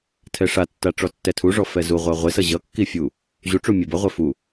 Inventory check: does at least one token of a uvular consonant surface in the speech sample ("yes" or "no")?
yes